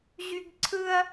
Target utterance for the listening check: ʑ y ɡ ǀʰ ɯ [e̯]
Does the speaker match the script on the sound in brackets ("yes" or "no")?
no